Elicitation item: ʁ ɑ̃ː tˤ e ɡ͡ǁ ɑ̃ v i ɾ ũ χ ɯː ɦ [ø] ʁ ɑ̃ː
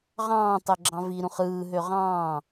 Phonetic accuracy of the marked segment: correct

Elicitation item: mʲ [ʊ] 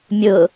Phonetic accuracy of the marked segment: correct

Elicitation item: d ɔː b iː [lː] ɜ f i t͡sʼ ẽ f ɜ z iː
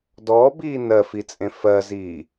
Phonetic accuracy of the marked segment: incorrect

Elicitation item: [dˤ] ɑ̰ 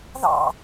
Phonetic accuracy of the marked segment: incorrect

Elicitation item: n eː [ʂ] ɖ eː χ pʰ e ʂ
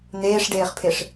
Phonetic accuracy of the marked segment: correct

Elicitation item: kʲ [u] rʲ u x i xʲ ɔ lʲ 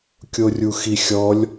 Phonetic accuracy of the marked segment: incorrect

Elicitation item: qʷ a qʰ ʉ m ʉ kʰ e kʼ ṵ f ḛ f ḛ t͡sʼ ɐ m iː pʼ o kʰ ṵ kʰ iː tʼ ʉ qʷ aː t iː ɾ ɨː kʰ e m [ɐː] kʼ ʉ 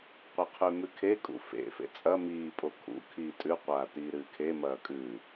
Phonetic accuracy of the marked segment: correct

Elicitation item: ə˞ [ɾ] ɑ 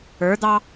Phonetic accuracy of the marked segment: incorrect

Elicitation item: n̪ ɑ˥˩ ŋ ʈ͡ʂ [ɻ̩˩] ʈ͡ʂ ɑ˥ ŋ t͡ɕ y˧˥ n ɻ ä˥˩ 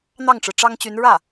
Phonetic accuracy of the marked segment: correct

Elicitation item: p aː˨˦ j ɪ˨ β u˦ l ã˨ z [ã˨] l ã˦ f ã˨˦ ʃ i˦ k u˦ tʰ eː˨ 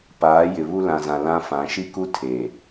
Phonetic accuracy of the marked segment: correct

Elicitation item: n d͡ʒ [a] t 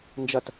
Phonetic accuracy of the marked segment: incorrect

